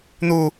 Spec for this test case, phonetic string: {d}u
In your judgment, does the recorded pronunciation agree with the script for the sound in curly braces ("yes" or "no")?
no